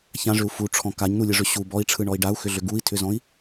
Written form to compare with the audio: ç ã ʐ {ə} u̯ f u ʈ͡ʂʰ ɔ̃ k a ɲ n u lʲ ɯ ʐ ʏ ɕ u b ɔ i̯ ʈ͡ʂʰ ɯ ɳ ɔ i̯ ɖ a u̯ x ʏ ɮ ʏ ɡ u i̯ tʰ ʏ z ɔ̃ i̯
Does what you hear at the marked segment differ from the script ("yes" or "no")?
yes